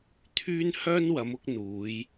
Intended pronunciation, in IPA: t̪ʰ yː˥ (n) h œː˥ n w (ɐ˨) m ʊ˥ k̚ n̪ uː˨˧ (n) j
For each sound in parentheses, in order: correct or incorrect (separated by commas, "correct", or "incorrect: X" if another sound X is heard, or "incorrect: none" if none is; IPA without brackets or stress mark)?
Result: correct, incorrect: ɐ˨˧, incorrect: none